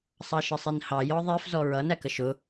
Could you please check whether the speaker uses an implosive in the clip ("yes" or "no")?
no